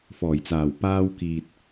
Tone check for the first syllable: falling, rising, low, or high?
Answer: low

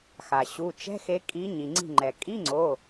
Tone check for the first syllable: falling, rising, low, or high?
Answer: low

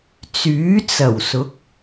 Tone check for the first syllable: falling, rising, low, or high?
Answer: rising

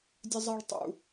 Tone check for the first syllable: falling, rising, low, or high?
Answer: high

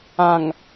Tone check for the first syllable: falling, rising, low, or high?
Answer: low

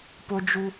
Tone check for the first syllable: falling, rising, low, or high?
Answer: high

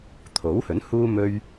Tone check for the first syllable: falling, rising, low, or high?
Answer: rising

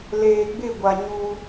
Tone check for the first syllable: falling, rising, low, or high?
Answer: low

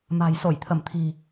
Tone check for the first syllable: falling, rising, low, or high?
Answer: low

